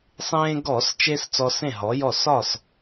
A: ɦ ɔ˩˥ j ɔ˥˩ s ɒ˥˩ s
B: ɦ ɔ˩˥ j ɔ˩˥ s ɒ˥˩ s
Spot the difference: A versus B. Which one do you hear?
A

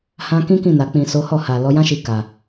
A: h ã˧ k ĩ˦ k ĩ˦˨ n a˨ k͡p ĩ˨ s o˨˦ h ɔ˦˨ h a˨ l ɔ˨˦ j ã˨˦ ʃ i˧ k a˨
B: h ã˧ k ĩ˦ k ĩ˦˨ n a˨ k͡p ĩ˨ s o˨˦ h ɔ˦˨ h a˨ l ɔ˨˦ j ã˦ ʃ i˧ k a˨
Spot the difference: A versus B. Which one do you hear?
B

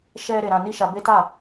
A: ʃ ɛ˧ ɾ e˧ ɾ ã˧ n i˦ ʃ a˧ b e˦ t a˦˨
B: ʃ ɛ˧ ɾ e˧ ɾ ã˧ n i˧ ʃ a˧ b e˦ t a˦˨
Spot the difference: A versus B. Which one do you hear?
A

